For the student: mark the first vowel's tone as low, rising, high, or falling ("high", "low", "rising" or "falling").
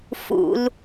high